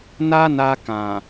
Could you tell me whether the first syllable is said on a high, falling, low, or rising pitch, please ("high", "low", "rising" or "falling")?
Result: high